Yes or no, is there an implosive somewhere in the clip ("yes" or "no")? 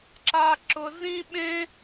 yes